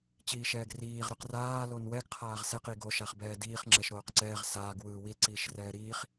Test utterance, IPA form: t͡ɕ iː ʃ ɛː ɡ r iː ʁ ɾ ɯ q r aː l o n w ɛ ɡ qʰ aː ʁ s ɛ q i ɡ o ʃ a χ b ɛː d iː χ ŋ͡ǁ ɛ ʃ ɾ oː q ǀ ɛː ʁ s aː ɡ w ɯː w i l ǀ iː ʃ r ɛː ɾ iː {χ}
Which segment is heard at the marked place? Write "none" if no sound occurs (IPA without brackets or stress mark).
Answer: χ